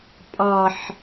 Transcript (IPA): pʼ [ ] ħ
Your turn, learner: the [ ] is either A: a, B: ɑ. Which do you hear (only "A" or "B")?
B